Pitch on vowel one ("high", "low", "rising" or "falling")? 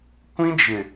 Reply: high